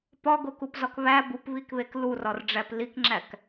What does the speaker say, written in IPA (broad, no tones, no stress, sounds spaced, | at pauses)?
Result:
p ɒ ɡ o k u p z ɒ k β æ b u p β i k β e k l u r ɒ r ɖ͡ʐ æ p l i k ŋ͡ǁ æ k